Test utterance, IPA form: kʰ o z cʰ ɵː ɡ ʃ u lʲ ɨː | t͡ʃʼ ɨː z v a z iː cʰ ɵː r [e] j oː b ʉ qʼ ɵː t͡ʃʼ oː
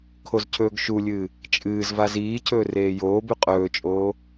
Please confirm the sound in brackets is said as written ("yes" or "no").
no